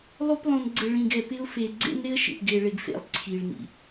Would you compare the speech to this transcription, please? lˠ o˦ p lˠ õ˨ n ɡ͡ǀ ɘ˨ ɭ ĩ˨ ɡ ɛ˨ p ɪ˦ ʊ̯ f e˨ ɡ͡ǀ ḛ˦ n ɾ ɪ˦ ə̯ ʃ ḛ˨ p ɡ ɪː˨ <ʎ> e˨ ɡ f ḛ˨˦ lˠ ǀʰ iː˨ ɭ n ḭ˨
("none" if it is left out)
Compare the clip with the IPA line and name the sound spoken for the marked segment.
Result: ɭ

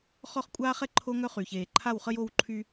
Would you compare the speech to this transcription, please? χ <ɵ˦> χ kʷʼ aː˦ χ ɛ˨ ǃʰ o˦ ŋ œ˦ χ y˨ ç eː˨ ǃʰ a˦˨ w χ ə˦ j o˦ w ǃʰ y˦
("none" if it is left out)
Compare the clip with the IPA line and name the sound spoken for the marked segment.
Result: ɔ˦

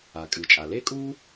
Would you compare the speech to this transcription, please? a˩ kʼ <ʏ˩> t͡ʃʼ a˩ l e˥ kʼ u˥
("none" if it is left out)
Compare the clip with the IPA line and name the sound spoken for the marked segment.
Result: ɨ˩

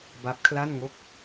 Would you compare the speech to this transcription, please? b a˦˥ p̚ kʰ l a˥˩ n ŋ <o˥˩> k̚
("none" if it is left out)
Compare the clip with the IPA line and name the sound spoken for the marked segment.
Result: o˥˩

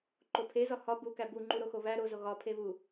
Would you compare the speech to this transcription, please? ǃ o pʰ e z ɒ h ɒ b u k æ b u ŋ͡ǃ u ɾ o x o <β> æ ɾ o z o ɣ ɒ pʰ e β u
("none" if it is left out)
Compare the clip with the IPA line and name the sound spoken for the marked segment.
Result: β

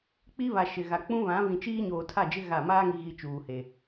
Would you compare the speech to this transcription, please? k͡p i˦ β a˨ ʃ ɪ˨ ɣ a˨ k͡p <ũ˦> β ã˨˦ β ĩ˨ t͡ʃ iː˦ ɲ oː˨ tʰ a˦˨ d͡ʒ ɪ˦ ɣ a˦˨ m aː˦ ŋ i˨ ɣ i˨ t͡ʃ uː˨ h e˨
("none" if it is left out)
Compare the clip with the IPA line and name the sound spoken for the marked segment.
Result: ũ˦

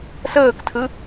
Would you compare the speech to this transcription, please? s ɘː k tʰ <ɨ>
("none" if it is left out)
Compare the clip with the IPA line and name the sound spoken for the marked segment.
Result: ɨ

